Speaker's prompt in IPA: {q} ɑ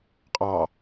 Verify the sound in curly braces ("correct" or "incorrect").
incorrect